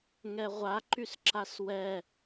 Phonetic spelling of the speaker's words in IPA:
ŋɛʁʷaǃysǁas wɛ

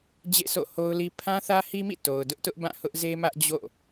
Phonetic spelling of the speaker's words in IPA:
d͡ʑḛ˦˨so̰˦˨ho˦ʊ̯li˦ pʰã˦θä˦hi˦mḭ˦˨ to˨ʊ̯dʊ˦ʔtʊ˦ʔbã˦˨ hʊ˦ʔze˦mä˦ʔ d͡ʑo̰˦˨

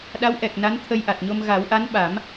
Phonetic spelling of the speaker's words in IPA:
ɗa˧˥wʔɛ˨˩k̚ na˧˥nt̪ʰə˧jʔa˨˩t̚ɲo˧m ɣa˨˩˦wʔa˧˥nɓa˨˩˦m

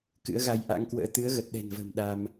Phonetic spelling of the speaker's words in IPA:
kɨ̰˧˥ə̯ɣa˧j ʔa̰˧˥ŋkwə̰ː˧˥ t̪ɨ˨˦ə̯ɣə˨˩t̚ɗɛ̤˨˩nvə̤ː˨˩m ɗa˧m

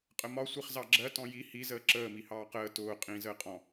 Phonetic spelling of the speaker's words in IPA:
qʼəmɒ sʷiχzɑɡ͡ǁɜ tɔ̃ji hi zəːǁəː mihɑːqəː tʊː qʼĩ zəːqʼɔ̃

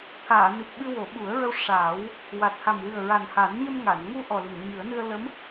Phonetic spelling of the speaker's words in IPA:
t̪ʰaː˨˩˨ni˨˩p̚ ɓɨ˧wo˨˩˦ɓu˨˩˦ə̯ɹə˧w ʂa˨˩˦w | wa˨˩t̚ha˨˩mwɨ˨˩ə̯ɹa˨˩n ha˨˩˦nɲə˧mŋa˨˩˨nŋu˧ ʔɔ˨˩li˨˩˨ŋɲɨ˨˩˦ə̯nɨ˧ə̯ lə˧˥m

